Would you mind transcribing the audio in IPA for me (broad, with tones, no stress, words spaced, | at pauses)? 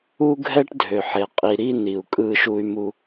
u˥ɡʱɛ˥ʈdʱø˩ħe˩ qʼi˩ ɾi˥ ni˩u̯kʼɯ˧ʃu˧y̯mu˧